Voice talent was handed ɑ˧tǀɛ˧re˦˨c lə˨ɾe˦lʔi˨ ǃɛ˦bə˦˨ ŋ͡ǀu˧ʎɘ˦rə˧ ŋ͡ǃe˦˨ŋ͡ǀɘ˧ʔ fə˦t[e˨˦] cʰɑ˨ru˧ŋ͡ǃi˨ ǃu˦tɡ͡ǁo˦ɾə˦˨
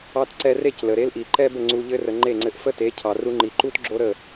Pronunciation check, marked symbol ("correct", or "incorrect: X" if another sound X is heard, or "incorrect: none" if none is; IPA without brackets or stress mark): correct